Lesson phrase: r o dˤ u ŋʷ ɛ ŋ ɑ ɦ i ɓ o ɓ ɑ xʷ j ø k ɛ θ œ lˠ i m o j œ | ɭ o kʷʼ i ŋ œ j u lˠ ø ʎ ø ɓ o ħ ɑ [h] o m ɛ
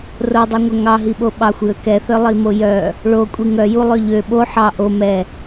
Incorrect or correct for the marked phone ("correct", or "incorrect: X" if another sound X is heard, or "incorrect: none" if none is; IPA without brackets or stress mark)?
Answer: incorrect: ʔ